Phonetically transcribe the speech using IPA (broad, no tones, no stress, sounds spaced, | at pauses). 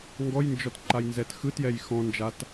ŋ ɡ ɔ j n d͡ʒ ɔ t ǃ a j n z ɛ t x ɯ t j ɛ j x ɔ̃ n d͡ʒ a t